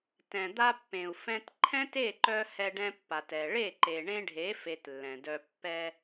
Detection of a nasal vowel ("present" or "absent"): present